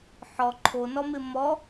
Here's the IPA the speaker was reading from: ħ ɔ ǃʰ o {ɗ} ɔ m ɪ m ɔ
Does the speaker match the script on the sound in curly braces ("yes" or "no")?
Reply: no